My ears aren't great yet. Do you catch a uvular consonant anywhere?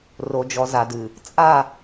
no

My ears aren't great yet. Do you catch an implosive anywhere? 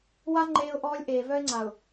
no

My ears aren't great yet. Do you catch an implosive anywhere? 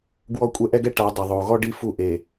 no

